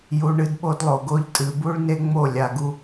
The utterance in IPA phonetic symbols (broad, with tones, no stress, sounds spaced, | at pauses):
j u˨ ɳ ɨ˧ d ɓ o˦ d lˠ o˨ ɡ o˦ ʎ tʼ ɨ˨ b u˦ ɭ n e˦ ŋ͡m o˦˨ lʲ a˧ ɡ u˦